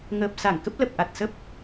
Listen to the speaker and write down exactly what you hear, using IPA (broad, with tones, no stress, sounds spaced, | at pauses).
ŋ əː˨˩ p̚ s a˧˩ ŋ k ə˦˥ p̚ l ə˨˩ p̚ ʔ a˨˩ t̚ s ə˦˥ p̚